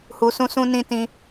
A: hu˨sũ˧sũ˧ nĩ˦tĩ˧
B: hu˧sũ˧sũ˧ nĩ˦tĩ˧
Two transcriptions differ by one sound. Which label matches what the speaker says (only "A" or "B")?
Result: A